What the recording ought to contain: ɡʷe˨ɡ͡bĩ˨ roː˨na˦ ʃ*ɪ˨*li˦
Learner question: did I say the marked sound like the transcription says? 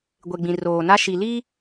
no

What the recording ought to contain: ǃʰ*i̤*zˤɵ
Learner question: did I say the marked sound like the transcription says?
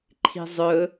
yes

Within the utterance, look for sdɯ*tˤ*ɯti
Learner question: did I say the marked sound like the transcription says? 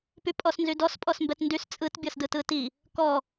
no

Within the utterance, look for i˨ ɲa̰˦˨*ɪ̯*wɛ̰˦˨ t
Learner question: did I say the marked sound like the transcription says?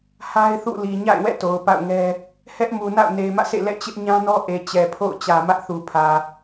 yes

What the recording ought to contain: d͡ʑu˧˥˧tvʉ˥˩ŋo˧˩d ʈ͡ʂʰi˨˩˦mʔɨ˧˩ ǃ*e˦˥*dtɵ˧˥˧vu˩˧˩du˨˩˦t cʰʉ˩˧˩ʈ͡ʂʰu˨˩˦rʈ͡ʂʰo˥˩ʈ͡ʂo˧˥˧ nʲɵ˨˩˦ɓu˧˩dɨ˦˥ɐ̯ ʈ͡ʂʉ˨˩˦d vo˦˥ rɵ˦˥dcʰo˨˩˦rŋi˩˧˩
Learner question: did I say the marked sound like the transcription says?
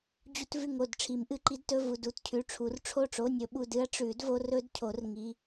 no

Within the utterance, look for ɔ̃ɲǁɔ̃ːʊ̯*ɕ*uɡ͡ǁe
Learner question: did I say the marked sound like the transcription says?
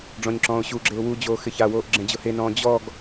yes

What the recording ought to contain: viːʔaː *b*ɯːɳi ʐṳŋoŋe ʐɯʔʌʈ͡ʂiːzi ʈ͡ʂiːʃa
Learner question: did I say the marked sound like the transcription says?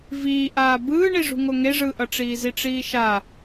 yes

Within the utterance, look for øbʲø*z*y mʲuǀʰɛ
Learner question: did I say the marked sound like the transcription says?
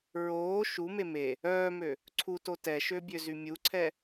yes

